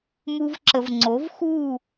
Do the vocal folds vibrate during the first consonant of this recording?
yes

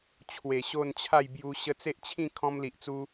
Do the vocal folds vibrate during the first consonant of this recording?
no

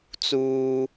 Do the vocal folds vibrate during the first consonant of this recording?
no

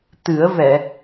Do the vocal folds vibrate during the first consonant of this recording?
no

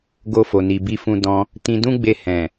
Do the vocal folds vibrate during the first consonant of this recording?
yes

